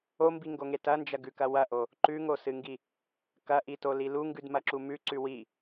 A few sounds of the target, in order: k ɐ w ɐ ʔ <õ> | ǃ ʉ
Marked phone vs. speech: incorrect: o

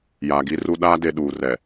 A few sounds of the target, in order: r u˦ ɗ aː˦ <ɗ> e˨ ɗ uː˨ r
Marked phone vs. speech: incorrect: d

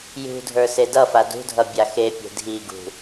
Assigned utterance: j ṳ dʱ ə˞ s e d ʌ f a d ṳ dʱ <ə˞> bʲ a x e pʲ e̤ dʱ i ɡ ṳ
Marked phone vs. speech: incorrect: ʌ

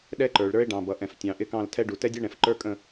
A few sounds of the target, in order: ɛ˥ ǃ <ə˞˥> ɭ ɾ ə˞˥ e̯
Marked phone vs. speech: incorrect: ə˞˩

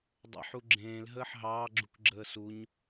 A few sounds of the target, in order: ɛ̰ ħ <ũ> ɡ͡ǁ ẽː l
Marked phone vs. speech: incorrect: u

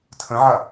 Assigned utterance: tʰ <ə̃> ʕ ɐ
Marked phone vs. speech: correct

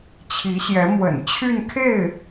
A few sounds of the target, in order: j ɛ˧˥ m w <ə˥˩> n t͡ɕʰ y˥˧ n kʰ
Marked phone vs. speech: incorrect: ə̰˨˩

